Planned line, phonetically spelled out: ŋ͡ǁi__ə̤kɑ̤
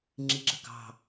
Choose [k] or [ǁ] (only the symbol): ǁ